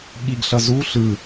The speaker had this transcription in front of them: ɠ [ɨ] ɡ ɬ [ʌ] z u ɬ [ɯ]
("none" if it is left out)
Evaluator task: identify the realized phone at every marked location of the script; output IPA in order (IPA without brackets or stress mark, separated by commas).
i, ʌ, ɯ